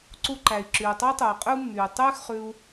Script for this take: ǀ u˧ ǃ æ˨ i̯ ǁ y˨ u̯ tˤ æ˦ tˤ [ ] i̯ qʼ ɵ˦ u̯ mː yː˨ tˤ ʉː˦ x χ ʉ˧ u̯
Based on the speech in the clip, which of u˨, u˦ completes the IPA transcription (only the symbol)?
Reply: u˨